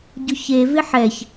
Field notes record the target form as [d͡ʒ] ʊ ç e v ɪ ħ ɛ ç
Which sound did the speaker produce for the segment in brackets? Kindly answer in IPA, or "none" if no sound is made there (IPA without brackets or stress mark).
ɟ